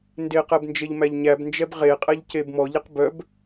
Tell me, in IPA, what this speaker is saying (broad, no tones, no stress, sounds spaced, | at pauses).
n d e q ɛ b n d͡ʒ e ʎ m æ ʎ ɲ æ b n d͡ʒ ɛ b ʁ e qʼ ɛ ʎ c e b m ɔ ʎ ɛ q b œ b